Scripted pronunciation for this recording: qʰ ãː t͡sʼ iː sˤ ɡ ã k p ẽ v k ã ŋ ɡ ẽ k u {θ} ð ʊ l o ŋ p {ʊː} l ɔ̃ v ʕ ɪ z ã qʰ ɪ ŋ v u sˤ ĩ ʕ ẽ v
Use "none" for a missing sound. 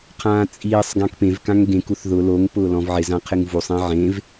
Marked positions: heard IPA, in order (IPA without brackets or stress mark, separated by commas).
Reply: θ, ʊː